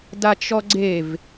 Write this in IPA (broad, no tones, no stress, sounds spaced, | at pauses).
d a t͡ʃ ɔ ɡ͡ǀ e v